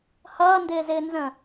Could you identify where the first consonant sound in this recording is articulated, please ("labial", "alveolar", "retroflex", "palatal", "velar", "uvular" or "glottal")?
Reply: glottal